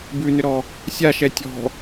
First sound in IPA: b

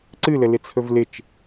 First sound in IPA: ǀ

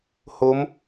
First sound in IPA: h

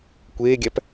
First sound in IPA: kʷ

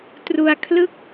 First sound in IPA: t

